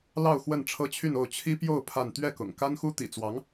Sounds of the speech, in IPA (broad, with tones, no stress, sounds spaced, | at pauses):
l ɑ˥˧ ʊ̯ x w ə˥˩ n ʈ͡ʂʰ ɤ˥ t͡ɕʰ y˥˧ n o˥˩ ʊ̯ t͡ɕʰ i˥ p j o˥˧ ʊ̯ pʰ a˥˧ n t̪ ɥ ɛ˥˩ k ʊ̰˨˩ ŋ k a˥ n x u˥ t̪ ḭ˨˩ t͡s w ɑ˧˥ ŋ